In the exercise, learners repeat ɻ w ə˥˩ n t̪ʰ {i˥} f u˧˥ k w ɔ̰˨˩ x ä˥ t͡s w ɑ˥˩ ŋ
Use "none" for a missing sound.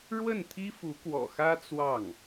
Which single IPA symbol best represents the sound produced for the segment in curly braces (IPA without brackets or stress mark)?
i˥